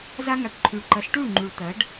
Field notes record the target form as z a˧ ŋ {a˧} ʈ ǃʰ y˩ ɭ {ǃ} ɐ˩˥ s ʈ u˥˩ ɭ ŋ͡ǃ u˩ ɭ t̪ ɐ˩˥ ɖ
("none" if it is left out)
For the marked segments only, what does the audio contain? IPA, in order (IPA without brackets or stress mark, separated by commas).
a˩, ǃ